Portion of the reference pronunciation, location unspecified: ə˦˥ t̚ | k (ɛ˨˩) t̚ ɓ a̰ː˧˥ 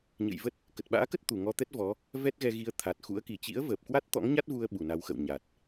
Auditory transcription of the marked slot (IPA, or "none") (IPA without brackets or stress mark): ə˨˩